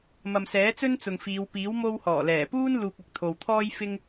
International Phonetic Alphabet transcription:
m ɐ˨ m s ɛː˨˥ t͡s ɵ˥ n t͡s ʊ˨ ŋ f iː˨˧ w p iː˨˥ w m o˧ w h ɔː˨˩ l ɛː˨˩ p uː˥ n l uː˧ k̚ ɐ˧ k̚ t̪ʰ o˨ w t̪ʰ ɔː˥ j f ɪ˥ ŋ

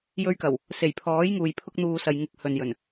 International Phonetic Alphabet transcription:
j ɵ˧ ɥ k ɐ˨˩ w | s e˨˩ j pʰ ɔː˨˥ j ŋ uː˨ j pʰ ʊ˧ k̚ n̪ uː˨ s ɐ˨ j ŋ ɪ˨ k̚ h ɵ˨ n j ɵ˨˩ n

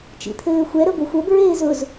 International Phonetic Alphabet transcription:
t͡ʃ ḭ t̪ʰ ɘː xʷ ɛ ɾ ə ɡʷ ɘ xʷ ə b ɹ eː z ʊ z

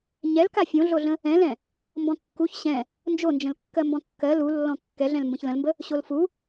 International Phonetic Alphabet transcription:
ɲ ɛ l k a fʲ õ ɮ o ɮ ə̃ | ɛ̃ l ɛ̃ | m b ɔ̃ kː u ç ɕ ɛ̃ | n d͡ʒ o n d͡ʒ ə̃ l kː ɜ m b ɔ̃ kː ɜ l u lː ɔ̃ kː ɛ ɮ ɛ̃ l m b ə̃ ç l ə̃ l m b ə | ɕ o l f u

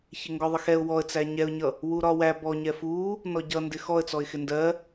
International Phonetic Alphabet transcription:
ç ɪ ŋ ɡ ɔ ðˤ ʌ x ɛ ʊ̯ w ɔ ə̯ t͡s æ ɲ ɛ ʊ̯ ɲ ʌ | w u ɾ ɒ w æ b ɔ ɲ ɛ f u | n ɔ ɟ ʌ n d ɪ x ɔ ə̯ t͡s ɔ ɪ̯ x ɪ n d ɜ

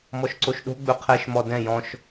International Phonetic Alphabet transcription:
m ɔ ʃ ǀ o ʃ ɗ o̤ ɡ͡b ɵ qʰ ɛ ʃ m ɔ d ɛ̃ j ɔ̃ ʃ

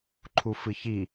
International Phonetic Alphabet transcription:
ǃʰ u f ɨ ç i

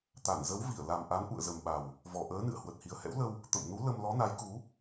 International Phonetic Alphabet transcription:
t̪ a˧˩ n z ə˨˦ w v i˧˩ ə̯ l a˨˩ m ʔ a˨˦ n ʔ ṵ˧˨ ə̯ z ə˨˩ m ɓ a˨˩ w | v ɔ˨˩ ʔ əː˨˦ n ɨ̰˧˨ ə̯ h w ə˨˩ t̚ h i˨˩ ə̯ h ɛ̰˧˥ w l ə˧ w | t̪ ə̰˧˨ m n u˨˦ l ə˧ m l ɔ˨˦ n a˨˦ j k u˨˦

